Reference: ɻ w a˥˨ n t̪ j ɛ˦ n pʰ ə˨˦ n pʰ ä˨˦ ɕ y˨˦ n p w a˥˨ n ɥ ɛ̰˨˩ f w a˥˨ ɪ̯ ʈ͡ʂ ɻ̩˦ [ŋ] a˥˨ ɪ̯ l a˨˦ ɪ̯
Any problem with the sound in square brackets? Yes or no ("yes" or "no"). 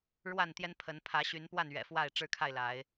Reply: yes